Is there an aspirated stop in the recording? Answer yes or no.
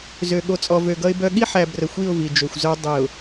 no